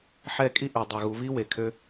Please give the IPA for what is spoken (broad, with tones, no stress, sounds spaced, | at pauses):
ħ ɛ˦˨ kʼ i˦ ʔ ø˨ dˤ œ˨ ɣ u˨˦ β i˦ w e˨ kʰ ø˦